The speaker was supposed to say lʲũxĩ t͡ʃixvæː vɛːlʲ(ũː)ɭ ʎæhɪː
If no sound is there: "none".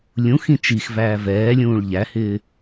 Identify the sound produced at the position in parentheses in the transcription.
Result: ũː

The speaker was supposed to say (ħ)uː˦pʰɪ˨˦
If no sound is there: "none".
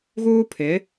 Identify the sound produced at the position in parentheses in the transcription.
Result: ɣ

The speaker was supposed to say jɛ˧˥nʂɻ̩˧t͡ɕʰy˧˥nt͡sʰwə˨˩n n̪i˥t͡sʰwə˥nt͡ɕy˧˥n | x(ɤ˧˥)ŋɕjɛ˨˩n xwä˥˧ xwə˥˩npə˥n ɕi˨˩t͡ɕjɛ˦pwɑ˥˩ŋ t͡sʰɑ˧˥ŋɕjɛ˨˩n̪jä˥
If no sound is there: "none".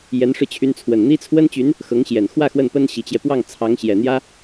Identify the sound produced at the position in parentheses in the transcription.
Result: ɤ˧˥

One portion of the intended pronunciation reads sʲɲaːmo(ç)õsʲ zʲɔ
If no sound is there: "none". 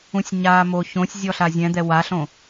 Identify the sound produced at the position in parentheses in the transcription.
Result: ç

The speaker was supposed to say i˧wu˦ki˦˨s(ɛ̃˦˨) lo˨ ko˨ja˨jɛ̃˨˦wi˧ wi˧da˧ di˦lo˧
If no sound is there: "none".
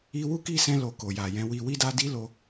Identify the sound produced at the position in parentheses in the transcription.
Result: ɛ̃˧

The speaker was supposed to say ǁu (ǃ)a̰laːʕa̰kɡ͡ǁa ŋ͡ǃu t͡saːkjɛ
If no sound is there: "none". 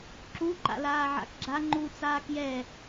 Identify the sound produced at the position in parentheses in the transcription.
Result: ǃ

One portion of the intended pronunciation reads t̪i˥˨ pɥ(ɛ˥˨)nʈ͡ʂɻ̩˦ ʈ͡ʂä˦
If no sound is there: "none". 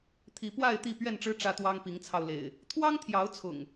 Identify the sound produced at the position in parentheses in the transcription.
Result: ɛ˥˨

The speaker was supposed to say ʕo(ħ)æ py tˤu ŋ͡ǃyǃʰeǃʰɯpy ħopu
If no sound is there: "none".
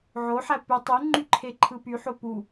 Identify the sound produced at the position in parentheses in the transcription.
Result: ħ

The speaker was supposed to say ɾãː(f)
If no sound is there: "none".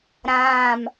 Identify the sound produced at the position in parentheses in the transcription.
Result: m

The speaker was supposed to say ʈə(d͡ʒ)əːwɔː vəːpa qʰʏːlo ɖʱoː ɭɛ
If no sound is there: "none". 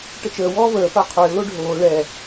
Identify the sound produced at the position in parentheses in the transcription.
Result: t͡ʃ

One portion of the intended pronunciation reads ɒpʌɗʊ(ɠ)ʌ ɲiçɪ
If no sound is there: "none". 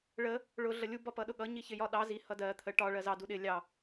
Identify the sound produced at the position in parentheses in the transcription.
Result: ɠ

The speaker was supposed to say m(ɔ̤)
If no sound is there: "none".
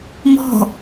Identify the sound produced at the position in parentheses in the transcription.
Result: ɔ̤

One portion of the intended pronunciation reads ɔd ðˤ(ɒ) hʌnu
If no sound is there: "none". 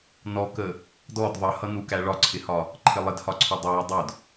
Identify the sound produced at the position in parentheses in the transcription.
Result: ʌ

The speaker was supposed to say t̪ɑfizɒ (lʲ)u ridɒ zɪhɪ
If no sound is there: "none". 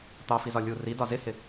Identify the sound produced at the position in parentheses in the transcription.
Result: lʲ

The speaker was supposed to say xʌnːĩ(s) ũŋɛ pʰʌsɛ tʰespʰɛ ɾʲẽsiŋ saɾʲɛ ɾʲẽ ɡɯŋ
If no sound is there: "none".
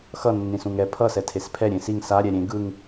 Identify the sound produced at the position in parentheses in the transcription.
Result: s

